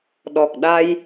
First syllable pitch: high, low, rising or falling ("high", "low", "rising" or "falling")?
low